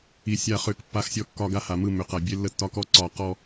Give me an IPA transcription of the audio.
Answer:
i˨ sʲ a˦˨ χ ʏ˦˨ k pː a˦ x sʲ ɔ˦ kː ɒ˦ ɡ a˦ h a˨ m ɯ˦˨ m ʏ˨ q a˨ bʲ e˦ lː ə˦ tː ɒ˦ k ɔ˦ ǀ ɒ˨ q ɔ˨

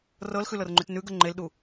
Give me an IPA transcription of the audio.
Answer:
r ɤ l x ʉ l ɤ r ŋ͡ǃ ʉ t n ʉ ɡ ə ŋ͡ǃ e l ɗ u

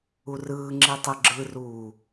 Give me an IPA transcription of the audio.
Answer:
u r ɯː ŋ͡ǁ i tˤ ɯ ɡ͡ǁ ɯ r uː

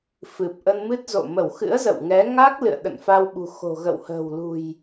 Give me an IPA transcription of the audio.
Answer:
f ɨ˨˩ p̚ ʔ ə˧ n m ɨ˦˥ t̚ z o̰˧˨ m ə˧˩ w x ɨ̰˧˥ ə̯ z ə̰˧˨ w ŋ ɛ˨˦ ŋ a˦˥ k̚ l ɨ̰˧˨ ə̯ ɗ ə̰˧˨ n f a˧ w ɓ ṳ˨˩ x o̤˨˩ ɣ ə̰˧˨ w h ə̤ː˨˩ w l ṳ˨˩ j

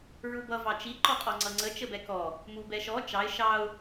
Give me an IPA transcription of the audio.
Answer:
ɹ u b ʌ v ɑ t͡ʃ i ǃ ɔ qʼ ɔ ŋ͡ǀ ʌ ŋ͡ǀ ə t͡ʃ ə b ɛ k ɔ | m u b ɛ ʃ ɔ t͡ʃ ɑ ɪ̯ ʃ ɑ ʊ̯

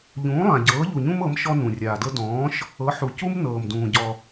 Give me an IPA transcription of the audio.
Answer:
ʎ ũː˩˥ lˠ ã˩ ɟ ɤː˩˥ ʎ u˩ ɲ ũ˦ m ɤ˩˥ m ʃ ɔ˦ n ũ˩ rʲ aː˩ d ɤ˦ d ɔ̃ː˩˥ ʃ | ɤ˩˥ ħ u˩ c u˦ m n ɤː˩ m d ũː˩ ɟ ɔ˩

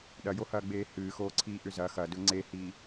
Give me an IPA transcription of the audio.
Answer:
ɗ ɐ j o h ɐː ɡ͡b eː h ɨː x oː ǀʰ iː ʔ ʏ z ɐ x ɐ d ɵ ŋ͡ǀ e h iː

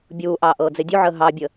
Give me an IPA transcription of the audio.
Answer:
bʲ uː ʔ ɑː ʔ ɤː d͡z e dʲ u ʕ əː ɦ ɑ bʲ ə

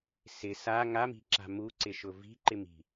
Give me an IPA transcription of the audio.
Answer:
s ɪ s a ŋ a m i̤ ǁ a̤ m u ǀ ɪ ʃ ʊ v i̤ ǃ ɪ m i̤

